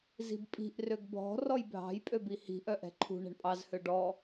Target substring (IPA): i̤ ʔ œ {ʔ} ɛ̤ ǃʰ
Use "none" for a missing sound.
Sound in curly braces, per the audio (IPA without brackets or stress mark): ʔ